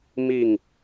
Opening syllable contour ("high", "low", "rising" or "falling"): falling